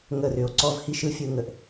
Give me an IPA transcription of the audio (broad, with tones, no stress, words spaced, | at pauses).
ŋə˦˨rʏ˨o̯ ǀɔ˦vhi˦ʃɯ˦ fʲɯ˦ŋə˨ʔ